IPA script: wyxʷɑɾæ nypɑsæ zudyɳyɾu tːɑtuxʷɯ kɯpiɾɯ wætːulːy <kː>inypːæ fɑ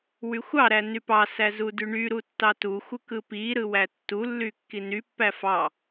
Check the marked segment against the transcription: correct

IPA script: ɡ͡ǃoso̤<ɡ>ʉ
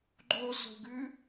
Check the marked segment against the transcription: correct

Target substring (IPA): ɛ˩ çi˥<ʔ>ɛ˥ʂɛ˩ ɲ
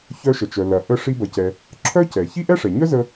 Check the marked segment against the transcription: correct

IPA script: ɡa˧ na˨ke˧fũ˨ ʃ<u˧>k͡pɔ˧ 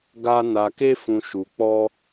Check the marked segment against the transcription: incorrect: u˨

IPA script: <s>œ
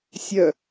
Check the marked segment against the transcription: incorrect: sʲ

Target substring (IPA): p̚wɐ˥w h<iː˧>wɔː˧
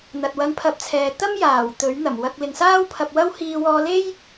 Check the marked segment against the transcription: correct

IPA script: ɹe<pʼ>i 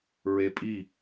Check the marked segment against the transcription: correct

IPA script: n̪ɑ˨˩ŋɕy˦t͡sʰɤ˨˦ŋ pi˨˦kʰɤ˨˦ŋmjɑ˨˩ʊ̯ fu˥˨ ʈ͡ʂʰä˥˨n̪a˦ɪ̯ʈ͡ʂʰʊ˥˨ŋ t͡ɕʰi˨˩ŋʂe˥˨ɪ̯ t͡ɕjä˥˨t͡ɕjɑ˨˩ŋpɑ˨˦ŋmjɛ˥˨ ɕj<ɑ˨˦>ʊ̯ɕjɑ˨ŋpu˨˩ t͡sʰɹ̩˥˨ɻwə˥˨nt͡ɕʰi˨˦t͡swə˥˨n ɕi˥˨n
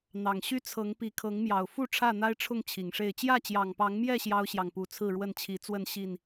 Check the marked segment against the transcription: incorrect: ɑ˦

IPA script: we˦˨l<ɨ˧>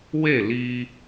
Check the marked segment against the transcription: incorrect: i˧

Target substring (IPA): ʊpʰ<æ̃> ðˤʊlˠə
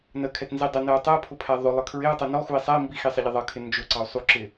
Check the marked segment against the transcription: incorrect: æ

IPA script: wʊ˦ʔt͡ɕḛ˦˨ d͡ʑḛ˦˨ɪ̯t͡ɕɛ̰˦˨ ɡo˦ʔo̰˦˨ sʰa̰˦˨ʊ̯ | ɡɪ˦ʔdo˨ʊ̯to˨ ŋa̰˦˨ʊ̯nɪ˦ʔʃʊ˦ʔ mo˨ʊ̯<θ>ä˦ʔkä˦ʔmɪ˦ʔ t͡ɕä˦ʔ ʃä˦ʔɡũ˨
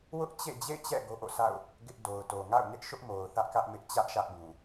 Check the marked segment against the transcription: correct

